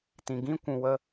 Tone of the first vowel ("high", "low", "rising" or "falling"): low